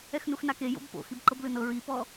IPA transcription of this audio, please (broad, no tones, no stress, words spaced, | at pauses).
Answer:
ɛxnuxnake jo̰bpo̰ xibǃɤblɯnɤ ɹipɔ